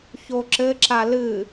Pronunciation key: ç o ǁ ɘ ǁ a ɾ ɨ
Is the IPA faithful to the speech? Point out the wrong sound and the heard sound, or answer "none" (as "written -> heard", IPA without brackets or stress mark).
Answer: ɾ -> l